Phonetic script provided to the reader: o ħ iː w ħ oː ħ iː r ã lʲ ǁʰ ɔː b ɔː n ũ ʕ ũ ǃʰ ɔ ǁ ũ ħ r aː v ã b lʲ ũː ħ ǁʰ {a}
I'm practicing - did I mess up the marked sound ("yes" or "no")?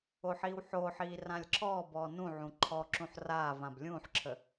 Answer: yes